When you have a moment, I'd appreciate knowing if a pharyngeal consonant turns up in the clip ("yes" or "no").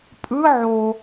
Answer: yes